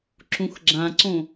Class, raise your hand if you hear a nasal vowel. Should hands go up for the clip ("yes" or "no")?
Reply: yes